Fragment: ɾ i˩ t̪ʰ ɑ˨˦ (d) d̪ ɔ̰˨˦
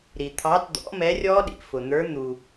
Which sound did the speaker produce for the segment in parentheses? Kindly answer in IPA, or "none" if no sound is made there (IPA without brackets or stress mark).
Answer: t